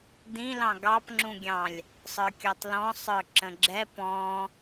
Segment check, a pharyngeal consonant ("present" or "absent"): absent